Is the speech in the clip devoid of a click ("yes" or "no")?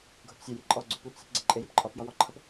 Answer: no